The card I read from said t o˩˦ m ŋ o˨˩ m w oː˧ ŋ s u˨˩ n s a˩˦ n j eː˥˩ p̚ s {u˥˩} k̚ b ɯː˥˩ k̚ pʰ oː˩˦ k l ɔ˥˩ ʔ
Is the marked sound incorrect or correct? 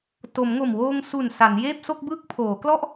incorrect